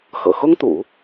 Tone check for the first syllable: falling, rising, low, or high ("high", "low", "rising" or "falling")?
low